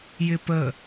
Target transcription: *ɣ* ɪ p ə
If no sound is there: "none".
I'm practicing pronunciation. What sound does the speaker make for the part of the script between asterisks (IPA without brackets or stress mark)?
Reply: j